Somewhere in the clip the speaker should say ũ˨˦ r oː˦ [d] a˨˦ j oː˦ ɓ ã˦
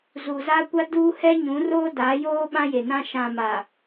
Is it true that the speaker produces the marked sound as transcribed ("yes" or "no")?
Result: yes